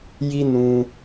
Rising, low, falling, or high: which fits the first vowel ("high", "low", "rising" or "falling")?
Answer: high